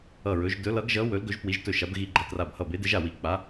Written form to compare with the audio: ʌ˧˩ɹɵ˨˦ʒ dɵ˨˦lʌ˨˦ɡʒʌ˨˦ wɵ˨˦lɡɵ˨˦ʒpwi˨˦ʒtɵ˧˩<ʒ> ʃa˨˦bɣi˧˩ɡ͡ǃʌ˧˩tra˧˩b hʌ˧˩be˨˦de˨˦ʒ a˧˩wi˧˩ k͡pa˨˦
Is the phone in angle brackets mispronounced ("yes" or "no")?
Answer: yes